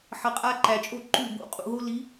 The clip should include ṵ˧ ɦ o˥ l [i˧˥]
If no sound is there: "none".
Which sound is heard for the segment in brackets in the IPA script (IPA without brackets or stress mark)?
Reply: i˧˥